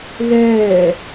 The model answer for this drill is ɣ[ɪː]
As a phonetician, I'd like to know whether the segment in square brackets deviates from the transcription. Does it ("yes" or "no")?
yes